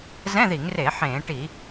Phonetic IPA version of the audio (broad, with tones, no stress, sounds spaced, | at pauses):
z ɛ̃˧˥˧ ð i˧˩˧ ŋ r e˧˩˧ ħ ẽː˧˩˧ ʈ i˧˩˧